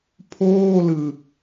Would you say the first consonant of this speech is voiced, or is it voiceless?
voiceless